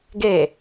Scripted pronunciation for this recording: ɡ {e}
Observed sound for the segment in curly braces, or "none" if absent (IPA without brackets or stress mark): e